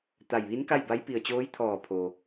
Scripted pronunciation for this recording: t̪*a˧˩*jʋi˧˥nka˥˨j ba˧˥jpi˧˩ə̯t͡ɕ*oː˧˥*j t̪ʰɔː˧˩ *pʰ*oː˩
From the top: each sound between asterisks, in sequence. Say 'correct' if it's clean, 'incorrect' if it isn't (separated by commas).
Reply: correct, correct, correct